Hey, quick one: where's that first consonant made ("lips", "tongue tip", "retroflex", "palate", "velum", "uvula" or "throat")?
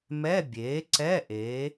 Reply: lips